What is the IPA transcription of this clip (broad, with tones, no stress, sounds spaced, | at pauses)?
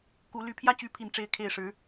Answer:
k u˧˥ l y˥˩ pʰ j ä˥ t͡ɕ y˥ pʰ i˥˩ n ʈ͡ʂ e˥ ɪ̯ kʰ e˥˩ ɪ̯ ʂ ɻ̩˧˥